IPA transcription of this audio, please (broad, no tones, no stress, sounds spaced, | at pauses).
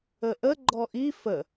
ə ʔ ə ɡ͡ǃ ɔ ʔ i f ə